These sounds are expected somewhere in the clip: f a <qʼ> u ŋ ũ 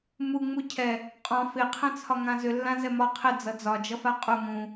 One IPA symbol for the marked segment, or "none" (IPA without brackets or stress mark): qʼ